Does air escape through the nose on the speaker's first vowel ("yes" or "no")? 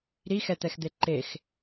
no